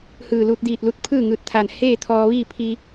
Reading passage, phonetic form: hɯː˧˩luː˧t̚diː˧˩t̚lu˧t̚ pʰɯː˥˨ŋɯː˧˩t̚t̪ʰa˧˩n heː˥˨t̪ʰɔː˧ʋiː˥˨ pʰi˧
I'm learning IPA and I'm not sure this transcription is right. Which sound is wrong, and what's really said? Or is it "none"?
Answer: none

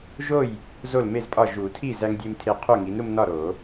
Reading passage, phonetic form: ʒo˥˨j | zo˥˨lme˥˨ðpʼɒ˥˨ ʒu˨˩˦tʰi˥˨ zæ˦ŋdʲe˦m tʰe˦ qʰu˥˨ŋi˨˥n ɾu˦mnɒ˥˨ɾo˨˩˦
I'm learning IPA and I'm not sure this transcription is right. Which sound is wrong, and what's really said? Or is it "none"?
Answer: ð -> z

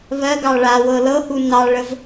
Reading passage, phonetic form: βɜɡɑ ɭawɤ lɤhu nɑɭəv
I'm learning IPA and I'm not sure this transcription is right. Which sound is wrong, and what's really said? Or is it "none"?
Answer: none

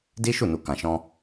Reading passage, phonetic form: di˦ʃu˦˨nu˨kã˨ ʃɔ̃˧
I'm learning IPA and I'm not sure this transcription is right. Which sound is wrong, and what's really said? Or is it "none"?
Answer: none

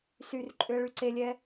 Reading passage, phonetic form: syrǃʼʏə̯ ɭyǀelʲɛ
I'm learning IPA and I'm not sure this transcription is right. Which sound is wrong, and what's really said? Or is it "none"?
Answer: none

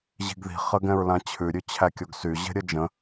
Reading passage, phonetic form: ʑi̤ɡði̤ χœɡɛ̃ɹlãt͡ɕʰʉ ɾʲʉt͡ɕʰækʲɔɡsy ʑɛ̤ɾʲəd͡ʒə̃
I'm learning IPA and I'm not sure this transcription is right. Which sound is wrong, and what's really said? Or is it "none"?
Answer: œ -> ə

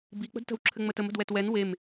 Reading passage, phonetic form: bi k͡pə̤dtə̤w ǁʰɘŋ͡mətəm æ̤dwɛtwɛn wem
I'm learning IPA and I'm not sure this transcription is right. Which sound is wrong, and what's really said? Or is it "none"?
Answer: æ̤ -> ə̤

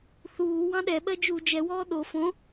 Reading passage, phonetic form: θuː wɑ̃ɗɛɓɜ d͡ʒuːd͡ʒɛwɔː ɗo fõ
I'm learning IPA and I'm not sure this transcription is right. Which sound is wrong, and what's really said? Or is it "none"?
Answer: none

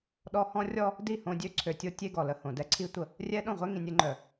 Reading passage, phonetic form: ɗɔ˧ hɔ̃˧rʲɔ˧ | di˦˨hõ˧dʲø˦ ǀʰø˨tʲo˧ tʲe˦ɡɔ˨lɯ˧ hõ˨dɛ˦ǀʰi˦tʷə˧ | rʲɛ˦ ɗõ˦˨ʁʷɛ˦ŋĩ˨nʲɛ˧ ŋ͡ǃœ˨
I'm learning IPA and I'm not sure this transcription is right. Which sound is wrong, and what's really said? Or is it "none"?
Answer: ɯ˧ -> ə˧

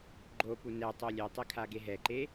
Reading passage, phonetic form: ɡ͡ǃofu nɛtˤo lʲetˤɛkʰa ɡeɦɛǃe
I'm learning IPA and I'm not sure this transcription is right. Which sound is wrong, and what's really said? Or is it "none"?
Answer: f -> p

